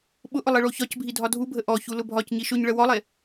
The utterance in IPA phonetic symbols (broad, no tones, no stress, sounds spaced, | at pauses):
ɓ ʊ ʔ ʊ lˠ i ɭ o ç ɒ c bʱ i dʱ ɒ dʱ u bʱ ə ʔ ɔ ç u l ʊ bʱ ɒ c ɲ i ʃ ʊ ɲ ɭ ə w ɔ lˠ e